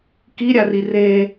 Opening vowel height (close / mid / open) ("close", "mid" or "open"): close